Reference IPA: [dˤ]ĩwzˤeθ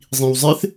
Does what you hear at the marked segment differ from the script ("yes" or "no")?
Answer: yes